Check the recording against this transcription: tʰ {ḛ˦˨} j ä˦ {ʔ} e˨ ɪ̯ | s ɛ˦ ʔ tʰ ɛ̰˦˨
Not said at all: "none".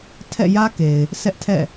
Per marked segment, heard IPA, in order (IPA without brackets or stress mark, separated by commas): ɛ̰˦˨, k